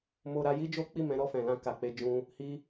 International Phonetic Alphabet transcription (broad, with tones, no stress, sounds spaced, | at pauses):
m o˧ ɾ a˧ j i˦ d͡ʒ o˦ k͡p i˦˨ m ɛ̃˨˦ ɾ ɔ˦˨ f ɛ̃˨ l ã˧ k a˨ k͡p e˨˦ d͡ʒ ũ˧ | h i˦